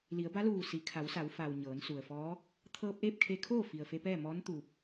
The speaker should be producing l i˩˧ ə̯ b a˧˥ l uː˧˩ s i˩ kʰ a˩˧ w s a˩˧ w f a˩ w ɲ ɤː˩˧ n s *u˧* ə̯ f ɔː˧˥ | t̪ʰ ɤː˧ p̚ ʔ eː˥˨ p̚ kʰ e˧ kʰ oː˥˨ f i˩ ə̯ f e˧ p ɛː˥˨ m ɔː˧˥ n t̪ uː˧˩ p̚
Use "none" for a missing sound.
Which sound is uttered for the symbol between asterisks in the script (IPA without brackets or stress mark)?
u˩